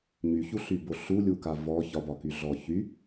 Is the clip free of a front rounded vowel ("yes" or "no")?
no